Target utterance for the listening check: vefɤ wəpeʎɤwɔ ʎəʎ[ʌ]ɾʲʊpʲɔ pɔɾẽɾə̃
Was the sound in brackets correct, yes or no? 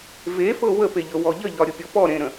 no